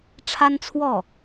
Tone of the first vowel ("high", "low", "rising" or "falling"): high